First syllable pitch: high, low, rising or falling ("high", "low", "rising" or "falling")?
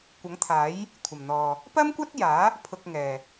rising